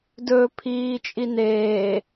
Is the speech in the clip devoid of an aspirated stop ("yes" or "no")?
no